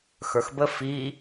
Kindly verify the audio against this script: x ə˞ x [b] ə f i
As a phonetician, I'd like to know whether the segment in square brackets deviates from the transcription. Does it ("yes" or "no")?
no